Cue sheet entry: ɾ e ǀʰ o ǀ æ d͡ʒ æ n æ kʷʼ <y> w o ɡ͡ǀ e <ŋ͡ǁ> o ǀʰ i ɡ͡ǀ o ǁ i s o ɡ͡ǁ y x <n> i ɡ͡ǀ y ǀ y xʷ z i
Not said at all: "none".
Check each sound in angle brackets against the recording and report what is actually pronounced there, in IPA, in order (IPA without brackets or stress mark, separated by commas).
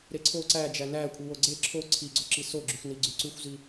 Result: i, ǁʰ, n